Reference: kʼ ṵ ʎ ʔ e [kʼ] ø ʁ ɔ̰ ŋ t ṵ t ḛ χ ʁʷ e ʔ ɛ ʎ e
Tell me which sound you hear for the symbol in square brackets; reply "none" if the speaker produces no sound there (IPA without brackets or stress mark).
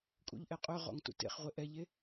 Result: qʼ